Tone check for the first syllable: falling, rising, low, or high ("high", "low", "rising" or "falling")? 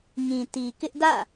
low